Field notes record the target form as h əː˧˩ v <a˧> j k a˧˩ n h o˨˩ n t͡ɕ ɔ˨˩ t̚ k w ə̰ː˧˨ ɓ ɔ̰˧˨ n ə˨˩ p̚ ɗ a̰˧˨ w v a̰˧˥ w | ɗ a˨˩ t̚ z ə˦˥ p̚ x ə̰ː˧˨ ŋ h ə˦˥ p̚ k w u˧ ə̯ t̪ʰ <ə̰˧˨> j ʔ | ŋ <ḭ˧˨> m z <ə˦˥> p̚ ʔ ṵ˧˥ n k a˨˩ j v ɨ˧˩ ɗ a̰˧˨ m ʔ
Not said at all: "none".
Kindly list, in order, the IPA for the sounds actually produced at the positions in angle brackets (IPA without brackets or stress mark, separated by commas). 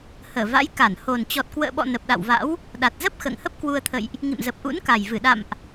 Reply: a̰˧˥, ə̰˧˨, ḭ˧˨, ə˨˩